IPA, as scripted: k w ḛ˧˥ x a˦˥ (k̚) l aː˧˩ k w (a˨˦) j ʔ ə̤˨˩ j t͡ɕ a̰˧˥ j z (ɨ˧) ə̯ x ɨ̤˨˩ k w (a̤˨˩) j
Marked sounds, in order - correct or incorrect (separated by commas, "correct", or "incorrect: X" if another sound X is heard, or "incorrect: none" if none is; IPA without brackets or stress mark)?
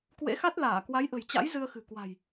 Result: incorrect: t̚, correct, correct, correct